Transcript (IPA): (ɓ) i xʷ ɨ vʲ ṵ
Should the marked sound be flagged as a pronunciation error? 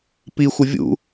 yes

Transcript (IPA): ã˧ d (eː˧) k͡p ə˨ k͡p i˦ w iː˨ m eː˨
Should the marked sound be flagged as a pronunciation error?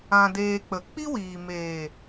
no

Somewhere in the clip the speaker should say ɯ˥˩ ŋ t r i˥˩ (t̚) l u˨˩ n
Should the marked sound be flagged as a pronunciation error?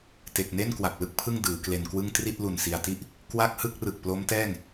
no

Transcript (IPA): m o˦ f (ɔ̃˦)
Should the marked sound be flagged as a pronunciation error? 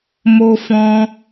no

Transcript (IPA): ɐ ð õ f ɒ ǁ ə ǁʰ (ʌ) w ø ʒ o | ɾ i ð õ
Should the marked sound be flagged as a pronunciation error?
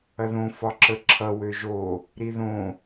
no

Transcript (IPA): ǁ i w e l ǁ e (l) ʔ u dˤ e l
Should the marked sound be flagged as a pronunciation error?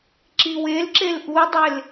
no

